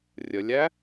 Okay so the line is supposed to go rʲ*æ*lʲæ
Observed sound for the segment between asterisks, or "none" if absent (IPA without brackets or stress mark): ə